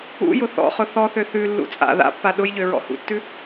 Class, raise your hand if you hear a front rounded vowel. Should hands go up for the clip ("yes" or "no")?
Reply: yes